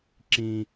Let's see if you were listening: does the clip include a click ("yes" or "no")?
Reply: yes